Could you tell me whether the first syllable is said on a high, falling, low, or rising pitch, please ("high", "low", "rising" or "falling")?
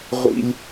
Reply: high